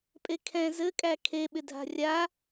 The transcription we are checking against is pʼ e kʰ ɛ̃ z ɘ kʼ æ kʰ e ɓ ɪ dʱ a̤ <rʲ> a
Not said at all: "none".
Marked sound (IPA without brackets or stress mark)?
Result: rʲ